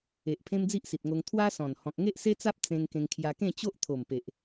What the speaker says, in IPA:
e˨ ʔ pʰ ẽ˦ m d͡z i˦ ʔ s i˨ t̚ ŋ o˧ ŋ t̪ʰ w a˦ s ɔ̃˨˩ n h ɔ̃˨ k̚ ŋ e˦ ʔ s e˦ t͡s a˦ p̚ t͡s ẽ˧ ŋ k ẽ˧ ŋ kʰ j a˧ k ẽ˥˧ t͡ɕ o˦ ʔ t̪ʰ o˨˩ m p e˨ ʔ

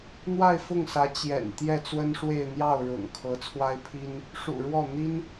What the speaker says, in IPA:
n̪ w a˥˧ ɪ̯ f ʊ˥˩ ŋ s ä˧˥ t͡ɕ j ɛ̰˨˩ n t̪ j ɛ˥˩ t͡s w ə˥ n ʂ w e˥˧ ɪ̯ n̪ j ɑ˥˩ ʊ̯ ɻ ʊ̰˨˩ ŋ kʰ ɤ˧˥ t͡sʰ w a˥ ɪ̯ pʰ i˥ n | ʂ ṵ˨˩ ɻ w ɔ˥˩ n̪ i˥ n

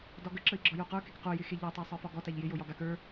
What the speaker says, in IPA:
d ɒ ɡ ə ǁ ə i̯ ɡ͡ǁ ɒ j o q ə˞ k ɪ k q o j ɪ x e ʎ ɔ tˤ a sˤ ə˞ f ɒ ɡ ɔ t a ʎ j ɪ j o j ɒ ɡ a k ə˞

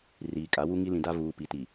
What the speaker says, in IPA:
r iː˨ kʼ a˨˦ w u˦ ŋ i˦ l ĩ˨ d a˦ v uː˨ p i˨ t i˨

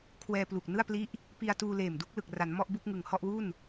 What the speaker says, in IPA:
kʰ w ɛː˧ p l u˨˩ k̚ n ɯ˥˩ a̯ p l i˦˥ ʔ | p i˧ a̯ t uː˧ l eː˨˩ m d u˥˩ k̚ l ɯ˨˩ k̚ r a˩˦ n m ɔ˥˩ ʔ b u˥˩ k̚ ŋ ɯ˨˩ ŋ h ɔ˥˩ ʔ w u˥˩ n

